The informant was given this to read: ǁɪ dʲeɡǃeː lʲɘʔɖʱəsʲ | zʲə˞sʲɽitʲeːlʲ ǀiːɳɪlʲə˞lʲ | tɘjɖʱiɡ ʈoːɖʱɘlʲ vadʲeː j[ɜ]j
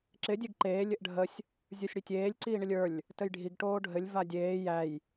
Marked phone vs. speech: incorrect: æ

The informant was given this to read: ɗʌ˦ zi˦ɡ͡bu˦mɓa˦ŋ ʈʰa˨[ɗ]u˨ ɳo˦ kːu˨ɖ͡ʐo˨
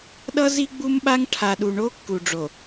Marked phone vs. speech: correct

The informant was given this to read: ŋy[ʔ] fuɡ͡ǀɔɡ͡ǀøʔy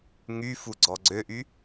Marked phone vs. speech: incorrect: none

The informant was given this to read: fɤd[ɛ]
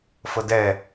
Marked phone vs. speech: correct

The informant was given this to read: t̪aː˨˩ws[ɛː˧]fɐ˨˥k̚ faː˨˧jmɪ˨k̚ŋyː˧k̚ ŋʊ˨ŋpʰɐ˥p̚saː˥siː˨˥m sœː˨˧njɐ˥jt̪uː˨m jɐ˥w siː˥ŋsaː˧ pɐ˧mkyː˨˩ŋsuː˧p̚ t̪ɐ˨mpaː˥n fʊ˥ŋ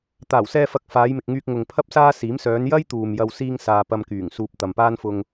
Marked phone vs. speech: correct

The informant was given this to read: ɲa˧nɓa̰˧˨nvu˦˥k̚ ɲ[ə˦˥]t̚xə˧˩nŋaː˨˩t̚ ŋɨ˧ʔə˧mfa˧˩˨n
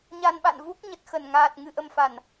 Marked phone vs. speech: incorrect: ə˨˩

